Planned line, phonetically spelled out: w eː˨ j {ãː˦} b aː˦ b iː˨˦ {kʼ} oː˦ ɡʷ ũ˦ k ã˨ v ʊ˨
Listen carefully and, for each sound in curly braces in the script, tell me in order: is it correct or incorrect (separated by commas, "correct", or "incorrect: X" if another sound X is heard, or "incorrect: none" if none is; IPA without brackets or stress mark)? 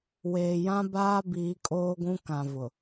incorrect: ã˦, correct